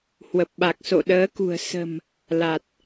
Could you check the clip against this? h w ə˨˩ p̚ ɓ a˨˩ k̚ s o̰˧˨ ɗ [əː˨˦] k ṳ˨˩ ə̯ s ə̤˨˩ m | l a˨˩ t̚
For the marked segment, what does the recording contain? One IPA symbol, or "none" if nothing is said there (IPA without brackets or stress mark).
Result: əː˨˦